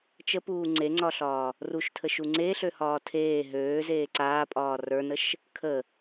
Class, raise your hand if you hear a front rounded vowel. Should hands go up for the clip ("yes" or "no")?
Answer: yes